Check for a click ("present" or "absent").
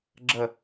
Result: present